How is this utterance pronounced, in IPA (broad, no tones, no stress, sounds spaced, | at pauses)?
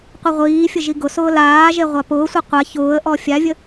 qʷ i ʁʷ iː fʲ ə ʒ i ɡ ʊ s ʊː l aː ʒ e ʁʷ a p ʊː sʷ i qʷ a ç ʊː ə̯ ʔ ɔ fʲ a vʲ ə